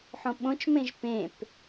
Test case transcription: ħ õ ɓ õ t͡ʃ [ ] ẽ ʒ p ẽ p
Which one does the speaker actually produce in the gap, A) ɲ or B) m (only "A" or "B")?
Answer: B